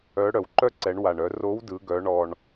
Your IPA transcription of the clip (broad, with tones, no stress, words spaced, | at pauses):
œ˧˥ ɽœ˩wǃœ˥ǀɛ˩˧ɳ wa˩ɳœ˩˧ro˧˥w dɯ˩˧ɡœ˩˧ɳɔ˩ɳ